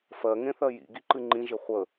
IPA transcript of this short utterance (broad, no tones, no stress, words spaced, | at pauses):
fɜ ŋẽθɜjḭ ɡiǃɨŋ͡ǃĩ ʒɪχʷə